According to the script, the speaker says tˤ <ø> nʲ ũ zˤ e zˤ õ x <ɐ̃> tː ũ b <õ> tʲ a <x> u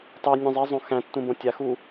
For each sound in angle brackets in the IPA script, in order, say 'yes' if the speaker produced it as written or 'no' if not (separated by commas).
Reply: yes, no, yes, yes